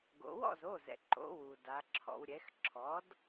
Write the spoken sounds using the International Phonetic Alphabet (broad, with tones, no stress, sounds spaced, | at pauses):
ɡ o̰˩˧ w ɔ̰˥˨ z o˩˧˩ z ɛ̰˩ ǃ o̰˩˧ w u˩ d a˩˧ ǁʰ ɔ̰˩˧ w ɾʲ ɛ˩˥ x ǁʰ ɔ˩˥ d